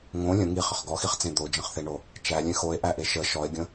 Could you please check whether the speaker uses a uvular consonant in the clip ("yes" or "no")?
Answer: yes